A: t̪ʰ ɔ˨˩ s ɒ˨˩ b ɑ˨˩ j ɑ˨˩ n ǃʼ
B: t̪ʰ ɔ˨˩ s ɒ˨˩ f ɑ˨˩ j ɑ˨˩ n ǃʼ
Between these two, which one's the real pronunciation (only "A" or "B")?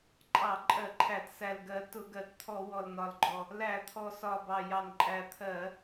A